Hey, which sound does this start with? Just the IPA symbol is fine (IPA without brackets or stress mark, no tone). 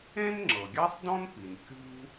ẽ